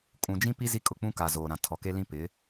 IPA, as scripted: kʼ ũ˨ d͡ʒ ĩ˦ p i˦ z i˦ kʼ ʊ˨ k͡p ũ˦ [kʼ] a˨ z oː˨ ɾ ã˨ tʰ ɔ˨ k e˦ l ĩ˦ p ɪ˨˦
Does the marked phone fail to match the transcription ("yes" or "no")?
yes